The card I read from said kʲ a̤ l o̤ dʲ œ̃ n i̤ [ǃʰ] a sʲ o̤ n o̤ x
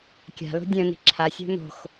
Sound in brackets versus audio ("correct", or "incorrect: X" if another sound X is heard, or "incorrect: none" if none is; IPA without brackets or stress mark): incorrect: ǁʰ